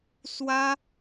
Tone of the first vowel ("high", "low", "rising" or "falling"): high